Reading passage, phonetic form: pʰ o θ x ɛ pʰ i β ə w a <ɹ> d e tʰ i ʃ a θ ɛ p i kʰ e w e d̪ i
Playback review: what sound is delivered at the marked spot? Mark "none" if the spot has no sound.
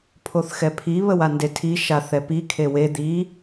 n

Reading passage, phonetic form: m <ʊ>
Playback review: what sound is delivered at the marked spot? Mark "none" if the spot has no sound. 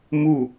u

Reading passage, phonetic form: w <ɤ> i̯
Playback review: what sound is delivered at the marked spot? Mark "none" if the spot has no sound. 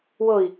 ɤ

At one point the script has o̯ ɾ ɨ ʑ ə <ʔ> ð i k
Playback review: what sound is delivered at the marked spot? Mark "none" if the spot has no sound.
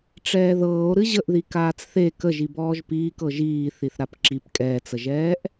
ʔ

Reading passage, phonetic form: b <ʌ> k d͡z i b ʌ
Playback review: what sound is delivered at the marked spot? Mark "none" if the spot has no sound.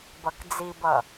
ʌ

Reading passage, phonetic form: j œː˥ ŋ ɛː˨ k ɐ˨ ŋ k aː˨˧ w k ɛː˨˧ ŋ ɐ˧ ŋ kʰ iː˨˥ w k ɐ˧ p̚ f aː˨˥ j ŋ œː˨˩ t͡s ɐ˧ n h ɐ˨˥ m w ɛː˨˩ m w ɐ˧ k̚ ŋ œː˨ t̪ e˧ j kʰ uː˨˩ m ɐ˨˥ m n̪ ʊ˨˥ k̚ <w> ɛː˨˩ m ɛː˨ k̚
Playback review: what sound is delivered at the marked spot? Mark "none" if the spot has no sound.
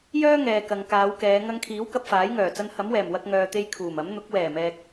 w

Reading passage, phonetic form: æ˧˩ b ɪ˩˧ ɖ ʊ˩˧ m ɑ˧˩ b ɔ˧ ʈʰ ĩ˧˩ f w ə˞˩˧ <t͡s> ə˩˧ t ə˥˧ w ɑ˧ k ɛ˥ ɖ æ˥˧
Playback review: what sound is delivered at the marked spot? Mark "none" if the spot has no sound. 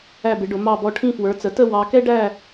t͡s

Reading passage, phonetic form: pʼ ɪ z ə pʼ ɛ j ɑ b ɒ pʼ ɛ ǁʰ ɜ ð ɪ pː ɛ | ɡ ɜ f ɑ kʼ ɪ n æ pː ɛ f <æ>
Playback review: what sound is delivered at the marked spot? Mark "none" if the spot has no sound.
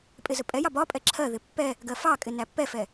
ɛ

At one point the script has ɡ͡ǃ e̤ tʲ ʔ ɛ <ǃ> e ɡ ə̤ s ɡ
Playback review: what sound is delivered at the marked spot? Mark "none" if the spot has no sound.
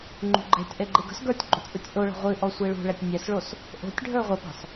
ɡ͡ǃ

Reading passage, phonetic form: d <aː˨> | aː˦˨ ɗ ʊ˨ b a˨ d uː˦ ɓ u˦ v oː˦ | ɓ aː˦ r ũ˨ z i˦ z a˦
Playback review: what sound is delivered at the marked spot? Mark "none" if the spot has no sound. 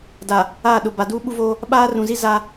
a˨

